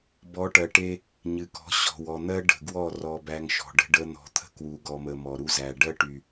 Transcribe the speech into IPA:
b ɔ˨˦ ʈ ɜ˨ ʈ e˦ | ɲ ɨ˨ k ɔ̤˨˦ ɕ ɔ̤˨ w ɔ˨ n̪ ɜ˦ ɖ ə̤˨ ɡ w ɔ˦˨ r ɔ˨ b æ˦ ŋ ʃ ɔ̤˨ ɖ ə̤˦ ɖ ə˦ n̪ ɔ̤˨ t̪ʰ ə̤˦ k w u˨ ɡ ɔ˨ m ə˨ m ɔ˨ ɾ u˦ z æ˨ ɖ ɜ˦ ʈ y˨

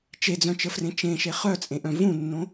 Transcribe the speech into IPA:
t͡ʃ e d͡z œ̃ t͡ʃ ə f r ẽ t͡ʃ ẽ ʃ e χ œ t͡sʼ ẽ ʔ œ̃ v ũ nː õ

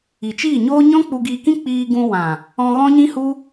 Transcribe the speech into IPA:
i˨ t͡ʃ iː˦˨ ɲ oː˦ ɲ ɔ̃˦ k͡p u˧ ɡ iː˧ k ĩ˦ k͡p iː˧ ɡ ũ˧ w ã˨ | ɔ̃˧ ɣ ɔ̃˦ ɲ ĩ˦ h u˦

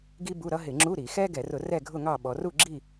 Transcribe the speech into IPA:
ɡ i˥ b u˧˥˧ ɾ ʌ˥ ɦ ɪ˧˩˧ ŋ͡ǁ u˧˥˧ ɾ i˧˩˧ x ɛ˥ ɡ ɛ˧˩˧ r ʊ˧˩˧ r ɛ˥˨ ɡʱ ʊ˥˨ ŋ ɑ˥˨ ɓ ɔ˩˧ r u˥˨ ɡ͡ǁ i˥˨

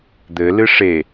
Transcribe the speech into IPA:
d̪ ɘ l ɨ ʂ e

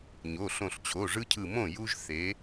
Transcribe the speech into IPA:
ɲ o˩˧˩ ɬ õ˧˩ ɬ t͡ɕʰ o˩˧˩ ʐ ɯ˦ cʰ ɯ˧˩ m õ˥˩ j u˦ ʒ θ e˩˧

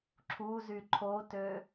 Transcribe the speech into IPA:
ǁʰ u z y ǃʰ o t ø

